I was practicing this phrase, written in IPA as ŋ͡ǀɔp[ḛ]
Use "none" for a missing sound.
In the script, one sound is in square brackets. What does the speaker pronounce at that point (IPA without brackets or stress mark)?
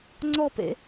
ḛ